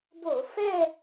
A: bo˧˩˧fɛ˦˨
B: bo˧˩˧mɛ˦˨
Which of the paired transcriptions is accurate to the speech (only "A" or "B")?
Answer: A